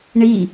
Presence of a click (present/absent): absent